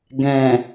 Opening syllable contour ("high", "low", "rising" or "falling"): low